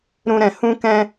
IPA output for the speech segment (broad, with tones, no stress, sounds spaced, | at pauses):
ɾ ũ˧ ɾ ɛ̃˨ h ũ˦ k ɛ̃˦